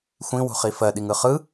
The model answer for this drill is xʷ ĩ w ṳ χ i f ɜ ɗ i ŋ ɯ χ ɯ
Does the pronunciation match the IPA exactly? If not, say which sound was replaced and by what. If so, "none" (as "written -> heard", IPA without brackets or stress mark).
none